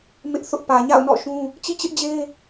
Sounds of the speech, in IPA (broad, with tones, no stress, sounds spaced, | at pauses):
m ɪ˦ ʔ θ ʊ˦ ʔ p ä˨ ɲ a̰˦˨ ʊ̯ n ɔ̰˦˨ ʃ ũ˦ | t͡ɕ ḭ˦˨ t͡ɕ ɪ˦ ʔ d͡ʑ e˦